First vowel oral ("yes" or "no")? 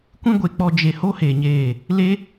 no